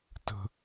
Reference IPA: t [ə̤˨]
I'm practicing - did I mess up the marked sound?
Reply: no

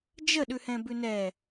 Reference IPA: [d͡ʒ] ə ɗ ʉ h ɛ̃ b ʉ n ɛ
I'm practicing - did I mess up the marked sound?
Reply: no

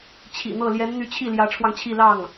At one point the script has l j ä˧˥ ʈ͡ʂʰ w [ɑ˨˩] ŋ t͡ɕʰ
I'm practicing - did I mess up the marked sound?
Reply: yes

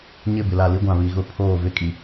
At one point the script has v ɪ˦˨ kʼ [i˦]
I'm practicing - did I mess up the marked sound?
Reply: yes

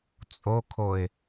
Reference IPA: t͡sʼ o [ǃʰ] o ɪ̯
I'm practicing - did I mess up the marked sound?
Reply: yes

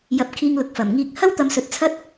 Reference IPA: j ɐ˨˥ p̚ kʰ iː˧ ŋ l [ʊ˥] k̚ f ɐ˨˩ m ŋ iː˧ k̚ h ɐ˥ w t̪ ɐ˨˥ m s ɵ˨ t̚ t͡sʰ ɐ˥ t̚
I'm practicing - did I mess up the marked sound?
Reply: yes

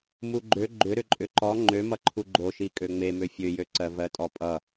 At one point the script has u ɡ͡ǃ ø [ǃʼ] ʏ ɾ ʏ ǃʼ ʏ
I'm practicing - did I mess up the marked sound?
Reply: yes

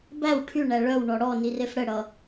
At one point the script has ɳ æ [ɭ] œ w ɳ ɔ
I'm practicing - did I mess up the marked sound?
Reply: no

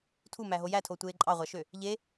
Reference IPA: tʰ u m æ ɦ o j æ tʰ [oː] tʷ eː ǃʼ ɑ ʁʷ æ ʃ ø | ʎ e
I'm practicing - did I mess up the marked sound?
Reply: no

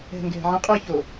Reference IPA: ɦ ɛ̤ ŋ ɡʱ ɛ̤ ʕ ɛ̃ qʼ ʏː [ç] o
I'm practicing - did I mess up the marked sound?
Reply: no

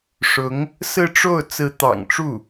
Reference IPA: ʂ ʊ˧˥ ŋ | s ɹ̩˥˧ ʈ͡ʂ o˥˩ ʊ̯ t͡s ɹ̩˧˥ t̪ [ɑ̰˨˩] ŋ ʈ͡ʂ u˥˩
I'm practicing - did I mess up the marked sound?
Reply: no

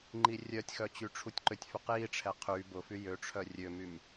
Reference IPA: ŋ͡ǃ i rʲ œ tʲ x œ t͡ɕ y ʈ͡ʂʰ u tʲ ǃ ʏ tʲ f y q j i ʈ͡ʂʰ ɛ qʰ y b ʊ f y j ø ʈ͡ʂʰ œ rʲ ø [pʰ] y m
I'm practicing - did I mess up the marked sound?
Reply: yes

